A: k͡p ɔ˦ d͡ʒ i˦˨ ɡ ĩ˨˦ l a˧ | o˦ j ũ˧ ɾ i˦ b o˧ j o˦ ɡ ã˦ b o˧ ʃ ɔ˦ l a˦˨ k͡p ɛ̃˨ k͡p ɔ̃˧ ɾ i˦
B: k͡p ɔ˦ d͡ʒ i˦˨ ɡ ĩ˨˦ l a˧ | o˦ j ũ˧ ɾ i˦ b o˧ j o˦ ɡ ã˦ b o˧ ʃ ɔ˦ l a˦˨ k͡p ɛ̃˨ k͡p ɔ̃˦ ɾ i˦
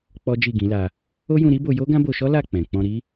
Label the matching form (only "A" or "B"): A